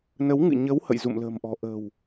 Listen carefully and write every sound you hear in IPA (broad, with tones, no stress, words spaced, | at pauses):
nə˨˦wŋɨ̰˧˨ ɲə˨˦w hə̰˧˨jzṵ˧˨mlə̤ː˨˩mʔɔ̤˨˩ ʔə̤ː˨˩w